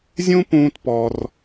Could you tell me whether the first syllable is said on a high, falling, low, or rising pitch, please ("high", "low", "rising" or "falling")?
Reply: high